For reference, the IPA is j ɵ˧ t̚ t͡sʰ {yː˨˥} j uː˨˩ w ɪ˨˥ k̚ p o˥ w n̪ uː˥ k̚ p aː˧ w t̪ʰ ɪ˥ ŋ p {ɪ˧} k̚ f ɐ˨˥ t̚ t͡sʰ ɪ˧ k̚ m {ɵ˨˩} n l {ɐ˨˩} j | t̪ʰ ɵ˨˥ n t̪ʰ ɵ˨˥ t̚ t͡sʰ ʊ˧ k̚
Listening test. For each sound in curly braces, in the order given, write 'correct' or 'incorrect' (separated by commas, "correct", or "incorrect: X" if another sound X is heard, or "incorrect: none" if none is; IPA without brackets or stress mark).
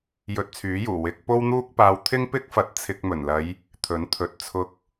correct, incorrect: ɪ˥, correct, incorrect: ɐ˨˧